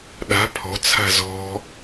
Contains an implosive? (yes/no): yes